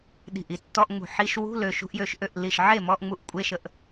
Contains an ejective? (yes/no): yes